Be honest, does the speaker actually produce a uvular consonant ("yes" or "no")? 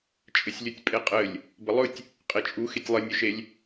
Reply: yes